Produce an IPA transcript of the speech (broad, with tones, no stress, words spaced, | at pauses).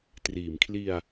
triː˩˦mkʰli˧a̯